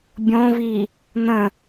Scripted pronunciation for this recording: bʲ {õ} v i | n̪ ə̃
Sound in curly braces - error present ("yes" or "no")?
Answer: no